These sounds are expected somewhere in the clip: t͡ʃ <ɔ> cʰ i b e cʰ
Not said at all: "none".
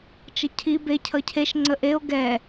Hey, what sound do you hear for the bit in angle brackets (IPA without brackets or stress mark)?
ə